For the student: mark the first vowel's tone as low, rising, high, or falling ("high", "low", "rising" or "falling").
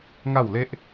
falling